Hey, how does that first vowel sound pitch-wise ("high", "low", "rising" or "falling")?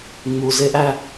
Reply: low